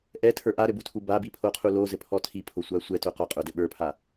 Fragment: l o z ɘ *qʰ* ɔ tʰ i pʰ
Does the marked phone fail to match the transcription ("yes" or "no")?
yes